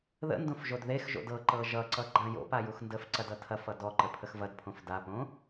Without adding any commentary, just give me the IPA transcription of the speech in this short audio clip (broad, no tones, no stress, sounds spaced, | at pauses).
ð ə̰ n d õ f ʒ o d ð e x ʒ o̰ d ɤ ǃ ɤ ʒ ʌ ǀ ʌ ɡ͡ǃ ã j o̰ p a j u x n d ə f ǀ ɐ d ʌ tʰ ɐ f ʌ d ɔ ǃ ə pʰ ə x v ɐ d pʰ õ f d a p õ